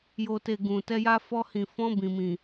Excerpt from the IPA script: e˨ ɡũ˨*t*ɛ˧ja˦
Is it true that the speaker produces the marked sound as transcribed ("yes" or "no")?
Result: yes